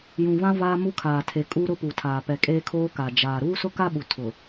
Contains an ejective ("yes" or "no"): yes